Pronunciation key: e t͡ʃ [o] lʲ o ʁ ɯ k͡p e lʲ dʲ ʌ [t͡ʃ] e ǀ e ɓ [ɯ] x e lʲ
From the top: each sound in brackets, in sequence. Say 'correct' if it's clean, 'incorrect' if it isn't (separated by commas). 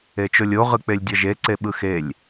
correct, incorrect, correct